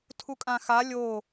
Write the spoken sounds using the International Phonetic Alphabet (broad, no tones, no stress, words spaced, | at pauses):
tʰukʼãxa lʲo